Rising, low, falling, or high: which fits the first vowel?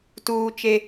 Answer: high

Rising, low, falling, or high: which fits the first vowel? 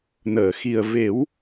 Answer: low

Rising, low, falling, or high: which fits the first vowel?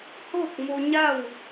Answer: falling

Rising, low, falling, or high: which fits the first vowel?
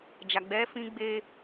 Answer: low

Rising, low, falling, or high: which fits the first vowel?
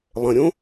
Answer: low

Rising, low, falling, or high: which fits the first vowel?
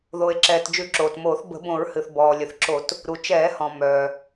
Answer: low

